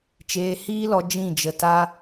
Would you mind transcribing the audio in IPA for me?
t͡ʃ eː˧ h iː˦ l ɔ˧ d͡ʒ ĩ˦˨ d͡ʒ ə˧ t a˦

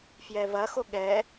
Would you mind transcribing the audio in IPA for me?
f j ɛ v ɐ x o ɠ ɛ

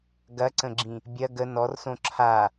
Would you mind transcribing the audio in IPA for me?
ɡ ɐ ǀ ə̃ ɡ͡ǁ ĩ | bʲ ɐ ɡ ə n ɔ r s õ ǁʰ a

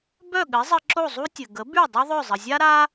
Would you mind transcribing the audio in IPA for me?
b œ˥˩ ɠ ɘ˩˥ zˤ ɘ˧ ǁ o˥˩ zˤ u˥ tʲ ɘ˩ ɡ ə˩˥ b y˥˩ dˤ u˥ ðˤ œ˥˩ zˤ ə˩ zʲ a˥ ɾ a˥

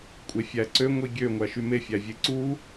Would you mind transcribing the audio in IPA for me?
kʷʼ e fʲ æ ǀ ø ŋʷ i ɡʲ ø ŋʷ æ ʃ y m e fʲ æ vʲ e ǀ u

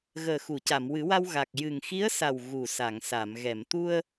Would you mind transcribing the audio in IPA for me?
ɣ əː˨˩ x u˨˩˨ c a˨˩˨ m w ɨ˨˩˦ w a˧ w ɣ a˨˩ k̚ j ɨ˨˩ ŋ x i˧˥ ə̯ s a˨˩ w ɣ u˨˩ s a˨˩˨ ŋ s a˨˩˨ m ɣ ɛ˨˩˨ m t̪ u˧ ə̯

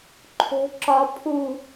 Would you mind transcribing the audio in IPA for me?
ǃʰ o̤ ǁ ɒ pʰ u

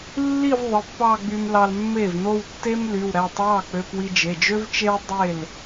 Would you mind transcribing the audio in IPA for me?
lː i˥˧ v ðˤ ɯ˩˧˩ pː ɑ˥˧ ɡ͡b y˧ m l ɑ˧ l mː e˥˩ v n o˥˧ w tː e˥ m l y˩˧˩ w ɾ æ˩˧˩ tˤ w ɑ˥˩ k͡p ø˧ p w i˧ d͡ʒ e˩˧˩ d͡ʒ ø˥ v t͡ʃ e˥ w dˤ e˥˩ l

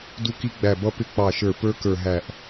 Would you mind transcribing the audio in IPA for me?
d u˦˥ k i˦˥ ɡ͡b æ˧˩ b ʌ˦˥ p ɪ˦˥ k͡p ɑ˧˩ ʃ ə˞˧˩ p ə˞˦˥ k ə˞˧˩ ɦ æ˧˩ ʔ

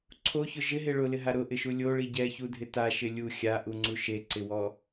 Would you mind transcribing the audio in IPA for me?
ǀʰ o ç ʊ ʒ ɪ ɦ e ɭ ʊ l ɪ ɦ a ɾ ʊ ʔ ɪ ʃ u lʲ o ɭ i ɟ ɛ ç u dʱ ɪ t a ʃ ɪ lʲ u xʲ a ʔ u ŋ͡ǀ u ʃ e ǀ ɪ w ɔ

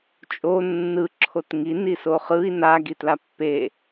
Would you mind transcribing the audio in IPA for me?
t͡ʃʼ o nː ɯ ǁʰ o t ŋ i n i s o χ ɯ i̯ n a ɡ i t l a pː e

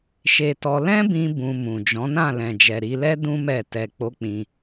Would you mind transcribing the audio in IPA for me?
ʃ e˧ t ɔ˧ l ɛ̃˦ b ĩ˧ b ũ˧ m ũ˨ d͡ʒ ɔ̃˨˦ n ã˦˨ l ɛ̃˨ d͡ʒ ɛ˨ ɾ i˧ l ɛ˦ d ũ˦ m ɛ˦˨ t ɛ˧ k͡p o˦ k͡p ĩ˧

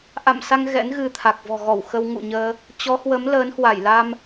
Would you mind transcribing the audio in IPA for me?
ʔ a̰˧˨ m s a˧ ŋ ɣ ɛ̰˧˥ n ɣ ɨ˧ t̪ʰ a˨˩ k̚ v ɔ̤˨˩ ɣ ɔ˧˩ w x ə˧ w ŋ ṵ˧˨ ɲ əː˧ | t͡ɕ ɔ˨˦ h w ə˨˦ m l əː˨˦ n h w a˧˩ j l a˧ m

